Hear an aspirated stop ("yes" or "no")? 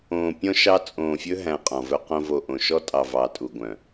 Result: no